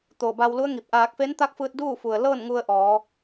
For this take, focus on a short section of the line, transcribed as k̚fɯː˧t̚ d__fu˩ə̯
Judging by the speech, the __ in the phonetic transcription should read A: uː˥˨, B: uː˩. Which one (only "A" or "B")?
A